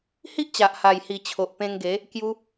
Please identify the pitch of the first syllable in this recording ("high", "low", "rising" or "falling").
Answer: high